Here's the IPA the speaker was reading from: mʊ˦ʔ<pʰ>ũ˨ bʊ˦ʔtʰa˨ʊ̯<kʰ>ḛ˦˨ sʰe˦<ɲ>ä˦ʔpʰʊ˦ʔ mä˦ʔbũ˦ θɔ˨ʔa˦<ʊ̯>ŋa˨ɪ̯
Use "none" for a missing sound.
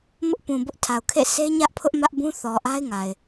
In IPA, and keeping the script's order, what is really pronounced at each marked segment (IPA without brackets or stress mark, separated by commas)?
p, kʰ, ɲ, ɪ̯